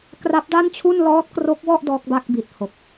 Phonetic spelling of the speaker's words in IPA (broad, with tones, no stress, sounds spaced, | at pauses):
k r a˦˥ p̚ d a˥˩ n t͡ɕʰ u˥˩ n l ɔː˦˥ t̚ k r o˦˥ k̚ w ɔ˥˩ ʔ d ɔː˦˥ k̚ b a˥˩ k̚ b i˨˩ t̚ h o˨˩ k̚